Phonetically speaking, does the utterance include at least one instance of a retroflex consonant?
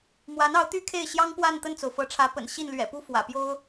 yes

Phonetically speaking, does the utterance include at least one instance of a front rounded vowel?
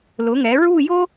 no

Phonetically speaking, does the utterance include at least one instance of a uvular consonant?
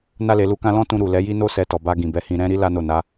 no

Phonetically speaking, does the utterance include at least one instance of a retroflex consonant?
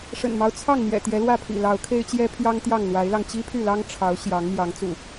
yes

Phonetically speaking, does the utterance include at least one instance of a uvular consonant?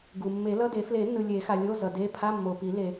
no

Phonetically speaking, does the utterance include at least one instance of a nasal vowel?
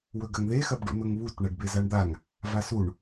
no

